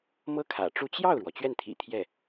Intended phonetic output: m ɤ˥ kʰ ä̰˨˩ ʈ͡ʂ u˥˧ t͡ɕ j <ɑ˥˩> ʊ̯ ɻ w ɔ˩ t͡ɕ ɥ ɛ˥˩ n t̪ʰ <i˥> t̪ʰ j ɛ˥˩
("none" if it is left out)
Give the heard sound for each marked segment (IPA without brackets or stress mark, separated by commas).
ɑ˥˩, ḭ˨˩